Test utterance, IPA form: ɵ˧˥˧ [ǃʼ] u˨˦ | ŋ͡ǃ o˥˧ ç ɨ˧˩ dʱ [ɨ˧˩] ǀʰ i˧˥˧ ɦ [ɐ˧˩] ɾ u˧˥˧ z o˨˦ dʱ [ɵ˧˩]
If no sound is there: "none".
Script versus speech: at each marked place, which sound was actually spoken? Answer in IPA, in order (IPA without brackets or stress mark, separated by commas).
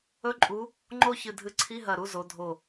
ǃʼ, ɨ˧˩, ɐ˧˩, o˧˩